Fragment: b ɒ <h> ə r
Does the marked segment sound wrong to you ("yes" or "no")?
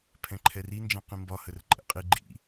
no